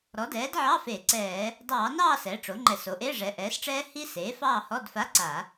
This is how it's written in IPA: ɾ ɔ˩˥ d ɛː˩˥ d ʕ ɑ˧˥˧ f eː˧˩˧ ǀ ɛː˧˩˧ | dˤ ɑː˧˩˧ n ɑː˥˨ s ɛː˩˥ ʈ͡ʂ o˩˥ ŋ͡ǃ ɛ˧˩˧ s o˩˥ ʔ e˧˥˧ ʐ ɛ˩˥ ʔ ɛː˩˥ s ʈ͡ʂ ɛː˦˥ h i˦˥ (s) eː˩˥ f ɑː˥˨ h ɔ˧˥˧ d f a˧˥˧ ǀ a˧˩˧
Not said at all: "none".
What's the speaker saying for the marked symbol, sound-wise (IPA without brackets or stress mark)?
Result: s